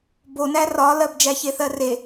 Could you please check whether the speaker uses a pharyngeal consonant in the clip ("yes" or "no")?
no